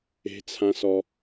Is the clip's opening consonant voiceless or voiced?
voiceless